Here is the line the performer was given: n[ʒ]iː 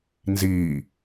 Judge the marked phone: incorrect: z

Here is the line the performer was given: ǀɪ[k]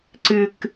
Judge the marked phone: correct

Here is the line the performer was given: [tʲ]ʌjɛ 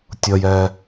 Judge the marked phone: correct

